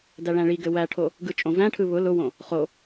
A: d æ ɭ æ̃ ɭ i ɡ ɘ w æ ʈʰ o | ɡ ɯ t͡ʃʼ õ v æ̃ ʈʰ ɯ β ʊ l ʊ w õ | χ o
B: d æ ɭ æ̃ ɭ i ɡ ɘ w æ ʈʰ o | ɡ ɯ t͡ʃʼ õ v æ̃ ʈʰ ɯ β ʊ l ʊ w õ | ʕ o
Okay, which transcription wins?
A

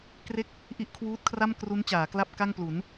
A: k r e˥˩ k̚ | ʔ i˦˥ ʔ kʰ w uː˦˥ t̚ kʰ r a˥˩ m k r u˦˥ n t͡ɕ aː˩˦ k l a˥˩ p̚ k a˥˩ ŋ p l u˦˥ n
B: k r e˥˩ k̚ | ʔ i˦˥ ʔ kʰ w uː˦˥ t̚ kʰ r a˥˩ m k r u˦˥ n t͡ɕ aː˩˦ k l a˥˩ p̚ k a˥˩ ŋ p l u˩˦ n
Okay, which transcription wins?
B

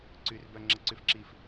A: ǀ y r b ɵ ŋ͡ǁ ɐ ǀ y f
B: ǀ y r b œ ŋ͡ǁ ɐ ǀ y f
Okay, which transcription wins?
B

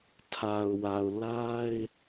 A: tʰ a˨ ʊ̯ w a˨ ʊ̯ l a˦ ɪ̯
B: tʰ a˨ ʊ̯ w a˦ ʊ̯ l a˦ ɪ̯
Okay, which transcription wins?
A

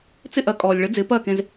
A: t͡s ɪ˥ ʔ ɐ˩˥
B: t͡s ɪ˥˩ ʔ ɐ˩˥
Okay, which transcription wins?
B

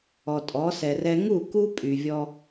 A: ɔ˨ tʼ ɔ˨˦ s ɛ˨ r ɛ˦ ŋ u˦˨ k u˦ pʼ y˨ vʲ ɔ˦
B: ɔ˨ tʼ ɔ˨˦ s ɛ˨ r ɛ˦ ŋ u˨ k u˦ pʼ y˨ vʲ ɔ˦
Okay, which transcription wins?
A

